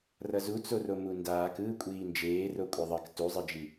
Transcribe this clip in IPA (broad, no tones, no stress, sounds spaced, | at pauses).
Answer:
r ʌ z u t͡s o r o m u n d aː k ɯː kʷʼ iː n d͡ʒ eː r o kʷʼ ʌ ðˤ ʌ k t u zˤ ɯ d͡ʒ i